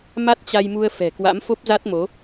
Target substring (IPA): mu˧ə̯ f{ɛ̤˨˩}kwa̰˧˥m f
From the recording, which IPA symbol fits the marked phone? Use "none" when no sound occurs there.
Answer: ɛ̤˨˩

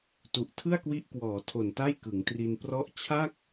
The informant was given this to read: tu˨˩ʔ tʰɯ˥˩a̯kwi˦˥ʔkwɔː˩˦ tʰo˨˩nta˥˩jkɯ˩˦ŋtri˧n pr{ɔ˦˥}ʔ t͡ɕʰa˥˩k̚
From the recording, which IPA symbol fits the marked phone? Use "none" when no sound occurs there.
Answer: ɔ˦˥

